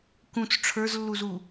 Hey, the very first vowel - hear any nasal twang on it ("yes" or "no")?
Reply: yes